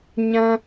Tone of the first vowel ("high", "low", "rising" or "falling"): high